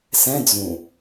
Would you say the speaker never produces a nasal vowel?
no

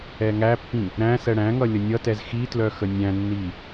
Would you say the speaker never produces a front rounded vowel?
no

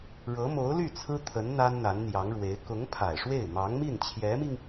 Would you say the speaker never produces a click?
yes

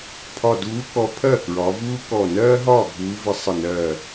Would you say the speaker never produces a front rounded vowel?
yes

